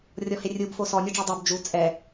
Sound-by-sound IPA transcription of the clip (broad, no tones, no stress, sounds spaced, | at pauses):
rʲ ɔ h e rʲ u b f o s ɔ nʲ o ɖ͡ʐ ɤ dˤ o b d͡ʒ u t͡sʼ ɛ